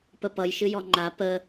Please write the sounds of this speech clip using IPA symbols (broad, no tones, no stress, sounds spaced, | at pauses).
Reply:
p ə p ʌ j ʃ ɨ j ɔ ŋ͡ǃ a p ə